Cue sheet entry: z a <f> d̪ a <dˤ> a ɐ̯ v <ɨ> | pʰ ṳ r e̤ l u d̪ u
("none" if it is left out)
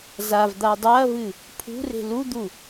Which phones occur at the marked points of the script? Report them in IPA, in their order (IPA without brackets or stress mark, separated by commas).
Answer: v, dˤ, ɨ